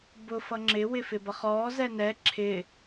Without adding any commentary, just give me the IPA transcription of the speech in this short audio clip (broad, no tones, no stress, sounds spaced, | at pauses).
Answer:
b ʊ f ʌ ŋ͡ǁ ɪ w ɪ f ɪ b ʌ χ ɔː z ɛ n ɛ ǁʰ ɪ